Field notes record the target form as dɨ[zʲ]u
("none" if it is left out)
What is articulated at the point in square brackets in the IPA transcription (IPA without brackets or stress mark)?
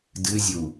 zʲ